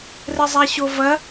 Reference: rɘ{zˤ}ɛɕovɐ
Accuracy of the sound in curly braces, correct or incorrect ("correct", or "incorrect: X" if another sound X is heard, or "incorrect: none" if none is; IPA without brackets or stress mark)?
correct